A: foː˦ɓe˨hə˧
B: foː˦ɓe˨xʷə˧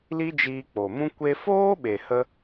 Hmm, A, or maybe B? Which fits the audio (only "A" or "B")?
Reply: A